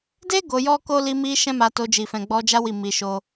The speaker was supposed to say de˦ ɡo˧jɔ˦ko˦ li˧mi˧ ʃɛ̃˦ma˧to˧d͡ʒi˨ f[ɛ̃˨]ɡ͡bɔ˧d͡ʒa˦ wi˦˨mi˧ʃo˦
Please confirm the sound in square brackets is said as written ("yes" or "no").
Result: yes